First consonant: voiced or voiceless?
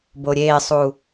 voiced